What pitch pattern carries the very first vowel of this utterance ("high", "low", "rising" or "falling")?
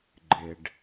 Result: low